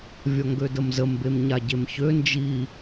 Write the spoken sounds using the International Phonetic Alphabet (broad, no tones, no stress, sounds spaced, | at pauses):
vʲ ɒ ŋ ɡ ø d ə m z ə m b e m ɲ a ɟ e m ç ø n d͡ʒ i